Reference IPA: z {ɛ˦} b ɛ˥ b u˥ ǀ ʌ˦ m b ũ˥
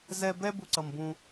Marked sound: correct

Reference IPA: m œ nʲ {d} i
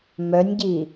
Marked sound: incorrect: ɟ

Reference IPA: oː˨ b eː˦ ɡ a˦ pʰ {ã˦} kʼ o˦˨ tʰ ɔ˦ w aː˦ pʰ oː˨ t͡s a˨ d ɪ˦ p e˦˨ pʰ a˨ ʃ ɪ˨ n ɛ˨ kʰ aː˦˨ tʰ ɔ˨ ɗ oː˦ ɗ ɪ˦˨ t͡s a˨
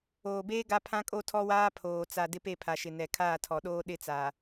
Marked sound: correct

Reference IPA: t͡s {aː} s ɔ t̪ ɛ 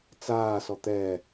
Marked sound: correct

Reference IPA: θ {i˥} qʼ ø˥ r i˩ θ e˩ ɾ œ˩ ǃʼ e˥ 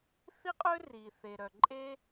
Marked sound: correct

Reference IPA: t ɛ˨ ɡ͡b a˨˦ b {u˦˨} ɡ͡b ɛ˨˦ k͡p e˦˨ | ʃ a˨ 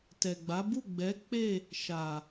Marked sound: correct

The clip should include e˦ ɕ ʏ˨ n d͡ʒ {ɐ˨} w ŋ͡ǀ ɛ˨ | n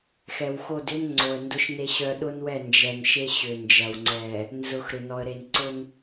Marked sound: correct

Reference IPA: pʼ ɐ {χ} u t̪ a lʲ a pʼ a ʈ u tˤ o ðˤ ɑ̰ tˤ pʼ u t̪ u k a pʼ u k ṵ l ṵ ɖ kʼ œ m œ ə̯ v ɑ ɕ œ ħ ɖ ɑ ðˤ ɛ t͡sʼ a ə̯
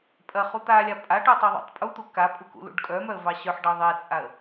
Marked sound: correct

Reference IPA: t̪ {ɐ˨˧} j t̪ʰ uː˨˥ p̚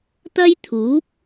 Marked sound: incorrect: ɐ˥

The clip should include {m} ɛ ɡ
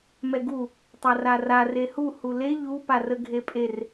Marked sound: correct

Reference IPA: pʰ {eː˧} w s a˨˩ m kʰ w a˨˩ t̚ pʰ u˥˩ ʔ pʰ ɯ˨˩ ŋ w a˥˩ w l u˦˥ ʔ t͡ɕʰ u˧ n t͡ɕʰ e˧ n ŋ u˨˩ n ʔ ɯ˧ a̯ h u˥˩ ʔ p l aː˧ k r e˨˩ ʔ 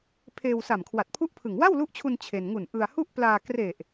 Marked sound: correct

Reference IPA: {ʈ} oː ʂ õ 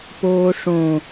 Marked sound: incorrect: p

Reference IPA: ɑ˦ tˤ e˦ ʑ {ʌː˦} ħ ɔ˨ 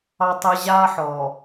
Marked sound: incorrect: aː˦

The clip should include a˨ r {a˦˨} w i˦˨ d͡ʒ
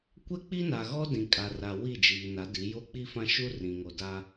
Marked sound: incorrect: a˨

